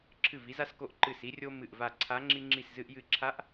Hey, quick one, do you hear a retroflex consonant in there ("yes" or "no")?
no